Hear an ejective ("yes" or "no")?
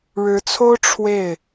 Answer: no